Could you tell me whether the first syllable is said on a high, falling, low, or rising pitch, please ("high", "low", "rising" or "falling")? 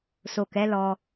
low